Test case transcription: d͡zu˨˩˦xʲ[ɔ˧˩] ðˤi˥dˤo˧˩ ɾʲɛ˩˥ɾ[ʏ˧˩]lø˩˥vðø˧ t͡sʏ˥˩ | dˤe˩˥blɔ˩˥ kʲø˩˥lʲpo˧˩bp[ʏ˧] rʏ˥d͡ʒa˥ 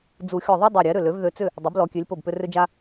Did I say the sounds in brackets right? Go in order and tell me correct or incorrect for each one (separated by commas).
correct, correct, correct